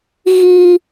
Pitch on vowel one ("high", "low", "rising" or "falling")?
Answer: high